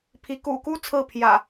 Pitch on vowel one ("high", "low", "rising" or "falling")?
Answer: rising